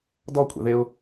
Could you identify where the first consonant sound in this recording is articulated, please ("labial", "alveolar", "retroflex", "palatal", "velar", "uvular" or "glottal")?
alveolar